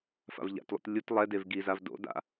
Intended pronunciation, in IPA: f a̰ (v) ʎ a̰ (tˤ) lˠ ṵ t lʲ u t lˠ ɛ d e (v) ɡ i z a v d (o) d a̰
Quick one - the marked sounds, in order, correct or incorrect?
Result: correct, incorrect, correct, incorrect

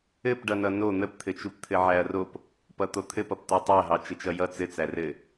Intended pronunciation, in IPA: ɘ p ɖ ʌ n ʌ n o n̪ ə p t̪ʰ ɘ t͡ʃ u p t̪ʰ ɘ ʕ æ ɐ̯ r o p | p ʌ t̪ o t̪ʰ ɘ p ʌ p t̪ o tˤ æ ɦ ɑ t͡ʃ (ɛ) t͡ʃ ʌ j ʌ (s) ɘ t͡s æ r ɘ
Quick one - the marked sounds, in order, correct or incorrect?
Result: incorrect, incorrect

